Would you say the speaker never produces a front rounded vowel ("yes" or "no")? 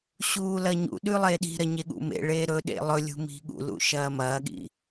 yes